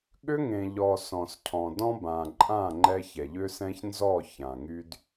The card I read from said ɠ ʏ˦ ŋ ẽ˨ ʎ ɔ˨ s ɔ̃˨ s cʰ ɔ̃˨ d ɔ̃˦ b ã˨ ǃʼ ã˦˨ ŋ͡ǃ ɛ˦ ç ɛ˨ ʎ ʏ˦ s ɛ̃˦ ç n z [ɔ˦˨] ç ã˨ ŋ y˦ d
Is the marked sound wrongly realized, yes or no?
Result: no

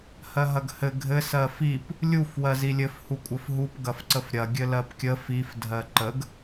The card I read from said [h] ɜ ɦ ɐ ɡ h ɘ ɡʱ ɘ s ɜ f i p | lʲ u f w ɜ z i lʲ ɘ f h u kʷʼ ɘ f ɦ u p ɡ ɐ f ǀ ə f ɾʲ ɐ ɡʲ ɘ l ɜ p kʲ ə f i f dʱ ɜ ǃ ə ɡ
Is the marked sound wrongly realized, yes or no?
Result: no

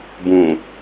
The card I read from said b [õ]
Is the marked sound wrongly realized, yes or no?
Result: yes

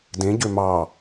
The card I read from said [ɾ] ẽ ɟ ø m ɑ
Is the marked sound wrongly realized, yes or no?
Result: yes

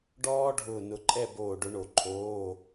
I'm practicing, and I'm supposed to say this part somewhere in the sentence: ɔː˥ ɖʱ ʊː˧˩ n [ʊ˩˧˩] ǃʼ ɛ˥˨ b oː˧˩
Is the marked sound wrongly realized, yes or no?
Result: yes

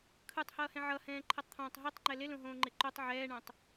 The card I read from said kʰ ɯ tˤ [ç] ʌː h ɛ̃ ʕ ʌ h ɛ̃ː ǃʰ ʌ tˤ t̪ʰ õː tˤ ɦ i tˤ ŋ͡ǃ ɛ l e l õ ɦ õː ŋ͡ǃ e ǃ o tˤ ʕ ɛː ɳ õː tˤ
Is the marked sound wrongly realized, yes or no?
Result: yes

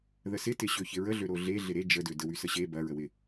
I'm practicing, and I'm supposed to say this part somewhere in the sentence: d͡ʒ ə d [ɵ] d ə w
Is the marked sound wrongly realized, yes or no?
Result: yes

